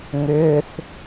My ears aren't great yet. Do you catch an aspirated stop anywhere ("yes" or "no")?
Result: no